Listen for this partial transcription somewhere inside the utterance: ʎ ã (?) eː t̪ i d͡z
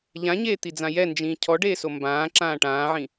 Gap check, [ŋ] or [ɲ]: ɲ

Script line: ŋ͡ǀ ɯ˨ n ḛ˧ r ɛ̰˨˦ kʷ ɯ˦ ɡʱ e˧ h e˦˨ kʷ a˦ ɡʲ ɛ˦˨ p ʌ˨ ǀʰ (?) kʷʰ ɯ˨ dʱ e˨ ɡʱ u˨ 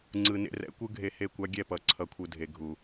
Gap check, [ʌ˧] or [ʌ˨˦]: ʌ˨˦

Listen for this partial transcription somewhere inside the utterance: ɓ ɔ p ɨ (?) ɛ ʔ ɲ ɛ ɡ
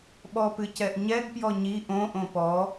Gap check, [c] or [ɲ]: c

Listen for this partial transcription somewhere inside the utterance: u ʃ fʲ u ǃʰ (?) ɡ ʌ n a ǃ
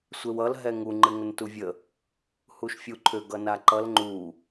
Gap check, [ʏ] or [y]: ʏ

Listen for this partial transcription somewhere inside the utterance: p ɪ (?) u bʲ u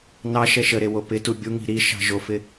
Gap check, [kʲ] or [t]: t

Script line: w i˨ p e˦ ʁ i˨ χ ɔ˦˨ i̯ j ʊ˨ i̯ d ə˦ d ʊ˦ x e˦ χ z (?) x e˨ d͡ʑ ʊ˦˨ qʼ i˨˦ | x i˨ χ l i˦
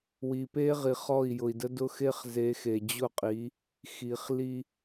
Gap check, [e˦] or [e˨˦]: e˨˦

